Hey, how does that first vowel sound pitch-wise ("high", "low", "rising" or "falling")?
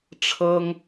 high